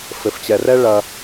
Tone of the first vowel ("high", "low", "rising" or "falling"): low